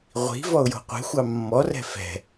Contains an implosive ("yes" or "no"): no